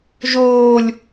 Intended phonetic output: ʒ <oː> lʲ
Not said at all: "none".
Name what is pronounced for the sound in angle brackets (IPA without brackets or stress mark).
oː